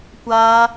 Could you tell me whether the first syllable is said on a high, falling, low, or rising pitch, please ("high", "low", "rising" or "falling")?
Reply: high